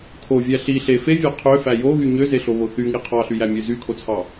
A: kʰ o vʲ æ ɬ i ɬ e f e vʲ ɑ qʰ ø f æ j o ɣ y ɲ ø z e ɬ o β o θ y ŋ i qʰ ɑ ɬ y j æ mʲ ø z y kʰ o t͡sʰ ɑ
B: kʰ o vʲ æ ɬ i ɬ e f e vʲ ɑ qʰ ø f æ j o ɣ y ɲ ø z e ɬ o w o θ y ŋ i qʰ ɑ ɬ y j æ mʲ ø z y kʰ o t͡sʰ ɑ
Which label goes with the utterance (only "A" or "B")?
A